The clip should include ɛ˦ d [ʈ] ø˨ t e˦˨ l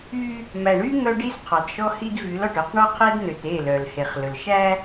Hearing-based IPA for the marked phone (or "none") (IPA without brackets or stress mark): n̪